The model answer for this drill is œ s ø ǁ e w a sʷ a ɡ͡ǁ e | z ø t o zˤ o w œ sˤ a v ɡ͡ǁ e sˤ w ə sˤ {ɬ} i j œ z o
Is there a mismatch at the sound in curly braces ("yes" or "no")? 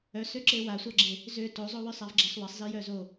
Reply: yes